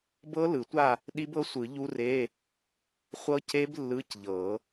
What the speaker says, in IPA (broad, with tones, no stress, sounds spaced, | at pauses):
b ɤ˦˥ l ɯ˨˩˦ tʷ a˥˨ | ɗ i˦˥ b ɤ˦˥ sʷ ɯ˨˩˦ ʎ u˦˥ r e˧˥˧ | χʷ ɤ˦˥ c e˦˥ b lː ɯ˧˥˧ c ʎ ɤ˨˩˦